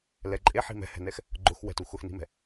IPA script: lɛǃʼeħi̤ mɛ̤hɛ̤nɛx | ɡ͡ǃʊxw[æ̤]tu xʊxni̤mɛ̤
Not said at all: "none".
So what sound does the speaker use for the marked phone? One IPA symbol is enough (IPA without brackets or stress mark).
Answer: ɛ̤